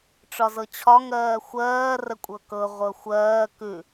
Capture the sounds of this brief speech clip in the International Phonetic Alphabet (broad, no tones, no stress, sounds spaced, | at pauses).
ʈ͡ʂ ɒ z ɤ t͡ɕʰ ɒ ŋ ɜː xʷ ɜː r ə kʷʼ ɤ k ɤ ʁʷ ɤ xʷ ɜː k ʉ